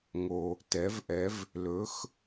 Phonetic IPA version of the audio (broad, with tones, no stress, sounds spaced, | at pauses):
ŋ o˩ | t ɛ˩˥ v ʔ ɛ˩˥ v | l ɵ˩˥ x